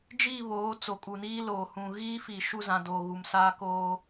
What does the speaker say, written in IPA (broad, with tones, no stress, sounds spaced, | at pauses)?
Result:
d͡ʒ i˦˨ β oː˨˦ t͡s o˨ kʼ u˨ n iː˦ l oː˨ h ũ˨ ɣ iː˦ f iː˨ ʃ u˦˨ z ã˨ d oː˨ ɣ u˨ m s aː˦ k oː˦